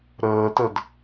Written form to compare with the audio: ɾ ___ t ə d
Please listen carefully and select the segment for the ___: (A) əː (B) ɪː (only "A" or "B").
A